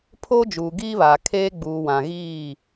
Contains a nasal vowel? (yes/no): yes